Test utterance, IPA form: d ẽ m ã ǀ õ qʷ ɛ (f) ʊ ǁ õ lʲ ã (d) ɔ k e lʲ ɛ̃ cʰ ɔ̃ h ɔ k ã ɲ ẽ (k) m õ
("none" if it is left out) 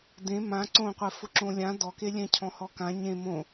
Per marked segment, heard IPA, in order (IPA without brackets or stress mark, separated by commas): f, d, none